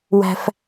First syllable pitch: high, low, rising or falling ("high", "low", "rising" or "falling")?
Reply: high